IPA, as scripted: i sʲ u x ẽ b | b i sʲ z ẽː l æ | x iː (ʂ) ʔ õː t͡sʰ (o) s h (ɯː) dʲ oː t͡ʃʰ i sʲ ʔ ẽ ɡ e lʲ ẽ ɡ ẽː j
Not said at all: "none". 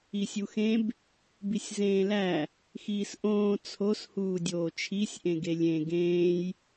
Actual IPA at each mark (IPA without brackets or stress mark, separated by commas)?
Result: s, o, uː